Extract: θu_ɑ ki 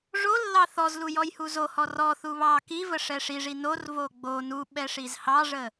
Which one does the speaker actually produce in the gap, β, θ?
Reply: β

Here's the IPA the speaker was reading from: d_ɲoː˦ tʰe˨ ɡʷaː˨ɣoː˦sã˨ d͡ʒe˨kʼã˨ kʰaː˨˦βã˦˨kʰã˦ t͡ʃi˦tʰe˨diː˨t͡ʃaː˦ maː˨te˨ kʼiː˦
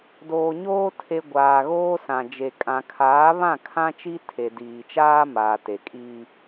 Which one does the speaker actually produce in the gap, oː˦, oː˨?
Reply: oː˨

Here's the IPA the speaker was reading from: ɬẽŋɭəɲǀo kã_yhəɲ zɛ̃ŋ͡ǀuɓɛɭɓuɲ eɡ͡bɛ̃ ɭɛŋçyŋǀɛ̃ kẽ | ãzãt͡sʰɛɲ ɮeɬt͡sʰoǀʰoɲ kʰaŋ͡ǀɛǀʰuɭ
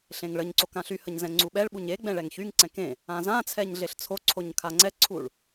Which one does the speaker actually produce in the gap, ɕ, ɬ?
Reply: ɬ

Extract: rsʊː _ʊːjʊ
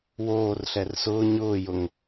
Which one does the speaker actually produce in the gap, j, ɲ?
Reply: ɲ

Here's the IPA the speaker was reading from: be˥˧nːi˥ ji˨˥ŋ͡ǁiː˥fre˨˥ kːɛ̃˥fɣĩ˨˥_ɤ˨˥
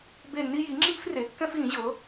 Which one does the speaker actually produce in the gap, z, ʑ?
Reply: ʑ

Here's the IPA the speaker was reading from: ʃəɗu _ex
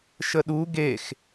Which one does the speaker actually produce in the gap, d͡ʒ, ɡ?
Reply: ɡ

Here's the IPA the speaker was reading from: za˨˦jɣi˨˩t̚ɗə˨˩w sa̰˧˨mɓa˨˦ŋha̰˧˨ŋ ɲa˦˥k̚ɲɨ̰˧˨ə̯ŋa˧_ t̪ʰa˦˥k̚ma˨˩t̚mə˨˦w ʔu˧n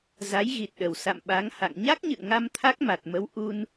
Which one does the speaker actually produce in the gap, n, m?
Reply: m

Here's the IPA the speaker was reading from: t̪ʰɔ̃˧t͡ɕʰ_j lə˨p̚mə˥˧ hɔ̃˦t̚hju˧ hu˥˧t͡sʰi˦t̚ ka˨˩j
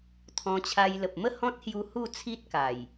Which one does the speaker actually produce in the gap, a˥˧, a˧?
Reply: a˧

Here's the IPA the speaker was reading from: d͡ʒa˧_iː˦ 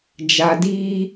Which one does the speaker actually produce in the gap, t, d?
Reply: d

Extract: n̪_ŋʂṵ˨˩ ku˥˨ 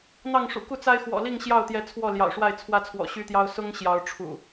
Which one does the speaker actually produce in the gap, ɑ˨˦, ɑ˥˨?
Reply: ɑ˥˨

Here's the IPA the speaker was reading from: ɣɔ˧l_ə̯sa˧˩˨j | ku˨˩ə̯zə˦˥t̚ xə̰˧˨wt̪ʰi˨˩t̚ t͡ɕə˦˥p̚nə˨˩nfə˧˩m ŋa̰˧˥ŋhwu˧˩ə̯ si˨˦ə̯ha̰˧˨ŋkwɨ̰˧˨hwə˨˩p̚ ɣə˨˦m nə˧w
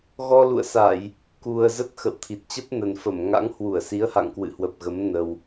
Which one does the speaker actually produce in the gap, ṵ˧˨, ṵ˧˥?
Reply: ṵ˧˨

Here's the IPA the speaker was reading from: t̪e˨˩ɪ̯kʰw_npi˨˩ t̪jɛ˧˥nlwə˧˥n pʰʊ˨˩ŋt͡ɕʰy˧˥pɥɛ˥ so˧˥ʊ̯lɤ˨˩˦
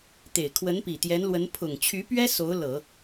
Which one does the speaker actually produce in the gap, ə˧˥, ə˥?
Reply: ə˧˥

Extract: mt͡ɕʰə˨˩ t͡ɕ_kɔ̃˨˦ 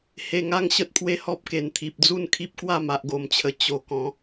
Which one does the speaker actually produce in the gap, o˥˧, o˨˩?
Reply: o˨˩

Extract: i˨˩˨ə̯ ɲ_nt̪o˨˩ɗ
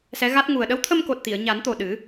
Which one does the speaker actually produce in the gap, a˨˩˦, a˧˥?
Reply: a˨˩˦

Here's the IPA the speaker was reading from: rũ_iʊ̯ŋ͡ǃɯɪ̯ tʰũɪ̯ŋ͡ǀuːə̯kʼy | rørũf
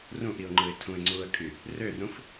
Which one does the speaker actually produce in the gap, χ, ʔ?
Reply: ʔ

